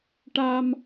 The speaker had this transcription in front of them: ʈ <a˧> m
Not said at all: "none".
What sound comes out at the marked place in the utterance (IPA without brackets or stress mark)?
a˧